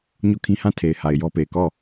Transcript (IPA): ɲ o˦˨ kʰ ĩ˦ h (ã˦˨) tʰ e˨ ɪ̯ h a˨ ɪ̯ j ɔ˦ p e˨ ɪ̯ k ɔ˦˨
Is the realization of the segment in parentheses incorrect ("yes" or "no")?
no